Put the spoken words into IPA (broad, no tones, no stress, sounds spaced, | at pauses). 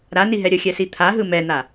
ɾ a n i ɦ ɛ ɾʲ ə xʲ ɛ s i t̪ʰ a ɦ ɯ m ɛ n̪ a